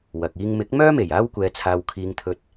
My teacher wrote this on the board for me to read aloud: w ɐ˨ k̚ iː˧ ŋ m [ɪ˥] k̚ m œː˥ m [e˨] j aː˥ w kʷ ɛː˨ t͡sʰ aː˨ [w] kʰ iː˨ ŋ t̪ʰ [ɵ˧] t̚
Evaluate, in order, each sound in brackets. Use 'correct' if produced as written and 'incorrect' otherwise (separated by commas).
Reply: incorrect, incorrect, correct, incorrect